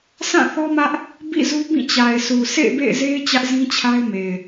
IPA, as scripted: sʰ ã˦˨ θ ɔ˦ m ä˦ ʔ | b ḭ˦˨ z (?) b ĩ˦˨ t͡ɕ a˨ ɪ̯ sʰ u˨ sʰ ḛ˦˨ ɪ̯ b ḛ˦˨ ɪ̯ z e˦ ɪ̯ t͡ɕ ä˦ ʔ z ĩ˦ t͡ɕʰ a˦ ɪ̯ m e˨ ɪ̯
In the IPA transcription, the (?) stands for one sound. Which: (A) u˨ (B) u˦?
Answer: B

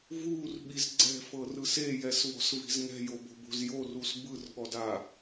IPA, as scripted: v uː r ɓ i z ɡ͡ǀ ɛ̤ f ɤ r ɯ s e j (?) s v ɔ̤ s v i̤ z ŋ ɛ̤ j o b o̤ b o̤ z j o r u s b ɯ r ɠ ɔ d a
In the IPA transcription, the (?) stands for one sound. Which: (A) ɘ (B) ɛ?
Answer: B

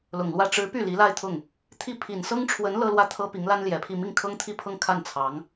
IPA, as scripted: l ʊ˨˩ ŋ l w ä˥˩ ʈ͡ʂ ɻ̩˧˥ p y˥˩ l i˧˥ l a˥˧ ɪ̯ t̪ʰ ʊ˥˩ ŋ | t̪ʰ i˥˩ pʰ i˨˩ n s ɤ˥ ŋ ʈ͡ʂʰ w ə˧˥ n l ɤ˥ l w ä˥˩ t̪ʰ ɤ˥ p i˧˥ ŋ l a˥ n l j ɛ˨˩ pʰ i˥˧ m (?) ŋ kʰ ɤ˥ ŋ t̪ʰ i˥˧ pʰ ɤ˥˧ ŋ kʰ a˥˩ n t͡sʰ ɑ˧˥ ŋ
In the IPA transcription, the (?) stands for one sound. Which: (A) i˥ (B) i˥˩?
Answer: B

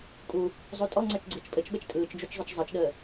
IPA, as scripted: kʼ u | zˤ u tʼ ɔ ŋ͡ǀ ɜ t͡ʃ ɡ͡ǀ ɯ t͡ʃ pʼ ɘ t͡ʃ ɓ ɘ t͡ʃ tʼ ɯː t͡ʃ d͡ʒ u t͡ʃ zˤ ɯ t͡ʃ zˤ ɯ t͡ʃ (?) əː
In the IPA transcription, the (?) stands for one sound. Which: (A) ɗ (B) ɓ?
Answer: A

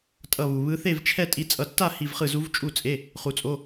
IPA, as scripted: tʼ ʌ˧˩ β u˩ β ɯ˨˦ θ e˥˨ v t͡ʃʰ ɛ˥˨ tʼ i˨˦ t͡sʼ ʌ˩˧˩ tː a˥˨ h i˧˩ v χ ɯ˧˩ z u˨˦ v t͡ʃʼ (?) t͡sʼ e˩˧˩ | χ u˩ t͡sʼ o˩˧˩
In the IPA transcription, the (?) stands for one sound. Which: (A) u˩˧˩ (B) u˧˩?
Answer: B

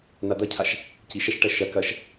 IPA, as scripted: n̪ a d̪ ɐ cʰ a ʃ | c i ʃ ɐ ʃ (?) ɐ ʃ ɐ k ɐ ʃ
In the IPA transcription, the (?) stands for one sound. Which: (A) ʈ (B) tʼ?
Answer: A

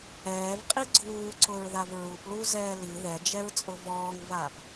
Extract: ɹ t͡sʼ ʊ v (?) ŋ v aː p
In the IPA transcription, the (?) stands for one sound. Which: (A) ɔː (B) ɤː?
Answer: A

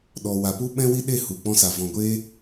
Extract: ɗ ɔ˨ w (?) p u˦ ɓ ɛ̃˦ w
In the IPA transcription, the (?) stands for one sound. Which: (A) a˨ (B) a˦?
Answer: A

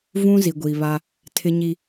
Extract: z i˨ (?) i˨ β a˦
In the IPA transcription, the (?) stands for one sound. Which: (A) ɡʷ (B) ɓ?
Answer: A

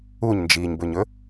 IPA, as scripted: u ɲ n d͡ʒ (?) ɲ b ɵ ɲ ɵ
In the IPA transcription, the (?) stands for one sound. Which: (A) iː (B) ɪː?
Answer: A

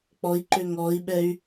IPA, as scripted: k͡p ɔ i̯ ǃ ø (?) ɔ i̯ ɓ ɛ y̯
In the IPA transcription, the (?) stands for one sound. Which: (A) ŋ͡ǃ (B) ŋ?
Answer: B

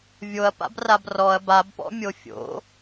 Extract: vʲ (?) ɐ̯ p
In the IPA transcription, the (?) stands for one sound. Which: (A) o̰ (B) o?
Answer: B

